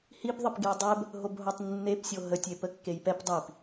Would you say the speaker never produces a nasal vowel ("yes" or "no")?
yes